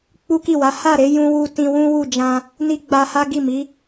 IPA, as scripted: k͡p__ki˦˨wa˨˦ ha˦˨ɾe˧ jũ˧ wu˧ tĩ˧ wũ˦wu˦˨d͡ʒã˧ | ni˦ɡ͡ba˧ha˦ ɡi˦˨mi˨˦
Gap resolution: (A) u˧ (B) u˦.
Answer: B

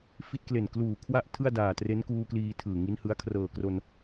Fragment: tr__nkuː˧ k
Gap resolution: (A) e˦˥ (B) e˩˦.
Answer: A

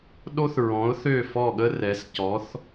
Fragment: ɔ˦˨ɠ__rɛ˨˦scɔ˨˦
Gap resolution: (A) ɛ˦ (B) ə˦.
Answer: B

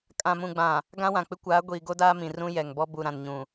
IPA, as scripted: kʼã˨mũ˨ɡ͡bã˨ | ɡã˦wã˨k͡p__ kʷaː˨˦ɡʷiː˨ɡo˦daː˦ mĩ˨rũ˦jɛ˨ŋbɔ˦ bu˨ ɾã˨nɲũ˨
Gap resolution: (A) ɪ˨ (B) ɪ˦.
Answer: B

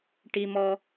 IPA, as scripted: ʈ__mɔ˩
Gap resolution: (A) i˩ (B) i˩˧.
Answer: A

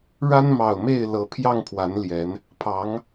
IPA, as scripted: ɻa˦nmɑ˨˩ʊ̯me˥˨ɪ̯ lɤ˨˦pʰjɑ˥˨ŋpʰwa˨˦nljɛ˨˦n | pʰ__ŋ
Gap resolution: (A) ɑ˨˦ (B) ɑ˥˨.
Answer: A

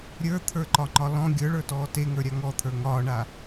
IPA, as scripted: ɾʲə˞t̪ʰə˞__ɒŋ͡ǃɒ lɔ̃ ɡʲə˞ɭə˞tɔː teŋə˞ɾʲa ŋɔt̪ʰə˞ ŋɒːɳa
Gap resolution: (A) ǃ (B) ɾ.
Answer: A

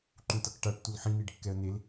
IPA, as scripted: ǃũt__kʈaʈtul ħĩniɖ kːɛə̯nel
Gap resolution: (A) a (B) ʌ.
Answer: B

